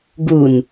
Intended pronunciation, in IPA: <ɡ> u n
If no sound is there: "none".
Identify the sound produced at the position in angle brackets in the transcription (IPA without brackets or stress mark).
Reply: ɡ